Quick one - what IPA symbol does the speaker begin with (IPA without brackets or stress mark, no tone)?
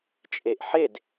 t͡ʃʼ